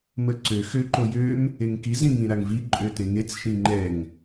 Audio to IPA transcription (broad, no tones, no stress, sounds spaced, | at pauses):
m ə ǀ ø x ø ǃ o j ø m | e ŋ k i z ĩ ŋ ĩ ɾ a ŋ v i ǃʼ ø t ẽ ŋ e t͡s ʃ ĩ ŋ͡ǃ ɛ ŋ